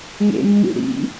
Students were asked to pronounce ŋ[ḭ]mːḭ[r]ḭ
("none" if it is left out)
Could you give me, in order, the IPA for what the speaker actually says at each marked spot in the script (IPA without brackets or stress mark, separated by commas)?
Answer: ḛ, ɽ